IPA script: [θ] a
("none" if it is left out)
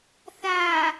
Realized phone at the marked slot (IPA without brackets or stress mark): θ